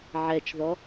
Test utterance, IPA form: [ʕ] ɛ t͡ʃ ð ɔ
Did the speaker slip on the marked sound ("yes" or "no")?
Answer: no